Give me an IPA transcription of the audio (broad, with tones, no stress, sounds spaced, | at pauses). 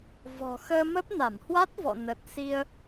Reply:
v ɔ̤˨˩ x əː˧ m ə˦˥ p̚ n a˧˩ m h w a˦˥ t̚ v ɔ̰˧˨ n ə˨˩ t̚ s i˧ ə̯